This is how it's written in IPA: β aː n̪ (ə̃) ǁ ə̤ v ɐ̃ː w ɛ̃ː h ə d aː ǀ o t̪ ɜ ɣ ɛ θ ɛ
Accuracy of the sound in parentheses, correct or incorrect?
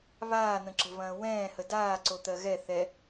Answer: correct